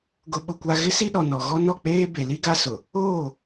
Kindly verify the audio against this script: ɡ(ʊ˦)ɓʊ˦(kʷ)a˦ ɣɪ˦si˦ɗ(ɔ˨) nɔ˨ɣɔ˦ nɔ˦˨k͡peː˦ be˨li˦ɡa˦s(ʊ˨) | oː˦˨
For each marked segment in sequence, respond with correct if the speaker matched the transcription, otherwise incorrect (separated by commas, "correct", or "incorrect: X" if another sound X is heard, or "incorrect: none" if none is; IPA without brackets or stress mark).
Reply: correct, correct, correct, correct